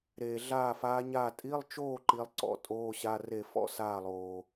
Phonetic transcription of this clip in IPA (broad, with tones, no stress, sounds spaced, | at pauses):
ɾ eː˨ ɮ aː˥˨ f aː˧˥ ɲ aː˥˨ tʼ i˧˥˧ lˠ t͡ʃ oː˥˨ ǃ i˧˥ lˠ ǀ ɔ̰˧˥ tʼ oː˧˥˧ ɕ a˧˥˧ r e˥˨ f ɔ̰˥˨ s aː˥˨ lˠ oː˨